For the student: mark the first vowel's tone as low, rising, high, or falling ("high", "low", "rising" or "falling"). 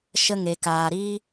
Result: high